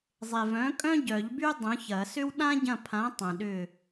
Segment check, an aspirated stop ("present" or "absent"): present